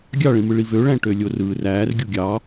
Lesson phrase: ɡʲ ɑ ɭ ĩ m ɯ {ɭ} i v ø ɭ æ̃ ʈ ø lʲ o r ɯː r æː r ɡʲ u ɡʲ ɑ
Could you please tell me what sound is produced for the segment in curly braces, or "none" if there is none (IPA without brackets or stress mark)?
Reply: ɭ